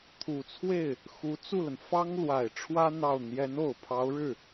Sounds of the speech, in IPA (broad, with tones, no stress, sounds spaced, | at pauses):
t̪ʰ u˨˩ t͡sʰ w e˥˩ ɪ̯ | x u˧˥ t͡s u˥˩ l ə˩ n f ɑ˥ ŋ l w a˨˩ ɪ̯ ʈ͡ʂʰ w ä˥ n̪ ɑ˥˩ ʊ̯ n̪ j ɛ˧˥ n o˨˩ ʊ̯ pʰ ɑ˧˥ ʊ̯ ɻ ɻ̩˥˩